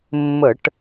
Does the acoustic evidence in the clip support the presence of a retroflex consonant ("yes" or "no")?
yes